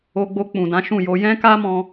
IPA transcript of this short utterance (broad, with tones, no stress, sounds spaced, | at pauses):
o˧ ɡ͡b o˧ k͡p ũ˨ d ã˨˦ ʃ ũ˦˨ j o˧ j ɛ̃˦ k a˦ m ɔ̃˧